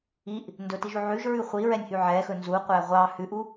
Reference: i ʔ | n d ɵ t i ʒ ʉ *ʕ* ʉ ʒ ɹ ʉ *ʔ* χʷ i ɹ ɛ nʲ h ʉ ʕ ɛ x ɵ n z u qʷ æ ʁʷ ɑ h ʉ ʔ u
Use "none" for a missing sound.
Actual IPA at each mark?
ʕ, none

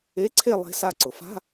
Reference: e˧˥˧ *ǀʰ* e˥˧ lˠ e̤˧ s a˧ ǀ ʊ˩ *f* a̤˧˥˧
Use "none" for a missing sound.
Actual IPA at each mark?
ǀʰ, f

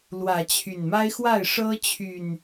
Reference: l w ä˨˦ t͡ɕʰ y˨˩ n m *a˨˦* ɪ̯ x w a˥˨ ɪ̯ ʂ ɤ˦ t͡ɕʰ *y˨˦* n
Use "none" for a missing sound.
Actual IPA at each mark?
a˦, y˨˩

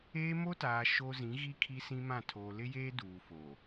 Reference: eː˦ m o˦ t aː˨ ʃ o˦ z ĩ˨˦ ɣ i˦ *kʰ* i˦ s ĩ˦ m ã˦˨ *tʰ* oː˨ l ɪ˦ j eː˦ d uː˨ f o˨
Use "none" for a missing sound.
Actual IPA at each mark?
kʰ, tʰ

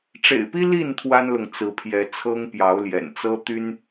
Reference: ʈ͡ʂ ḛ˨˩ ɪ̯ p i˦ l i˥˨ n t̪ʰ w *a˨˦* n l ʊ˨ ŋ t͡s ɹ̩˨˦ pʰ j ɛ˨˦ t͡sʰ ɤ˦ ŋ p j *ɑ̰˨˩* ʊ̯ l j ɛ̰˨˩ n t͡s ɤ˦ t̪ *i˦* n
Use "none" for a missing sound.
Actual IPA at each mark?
a˦, ɑ˨˦, y˦

